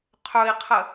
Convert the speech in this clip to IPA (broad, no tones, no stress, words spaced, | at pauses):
qʰɵi̯qʰə